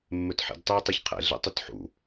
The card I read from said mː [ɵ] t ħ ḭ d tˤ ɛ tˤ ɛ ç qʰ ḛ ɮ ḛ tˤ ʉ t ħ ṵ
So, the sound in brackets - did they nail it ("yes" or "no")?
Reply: yes